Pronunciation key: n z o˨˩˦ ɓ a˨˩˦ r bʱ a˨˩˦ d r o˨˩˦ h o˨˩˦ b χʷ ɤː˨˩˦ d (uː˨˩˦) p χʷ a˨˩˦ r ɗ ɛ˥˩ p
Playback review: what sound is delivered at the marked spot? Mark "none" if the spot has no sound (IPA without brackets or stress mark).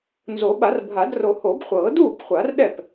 uː˥˩